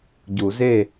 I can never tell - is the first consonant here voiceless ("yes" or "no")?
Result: no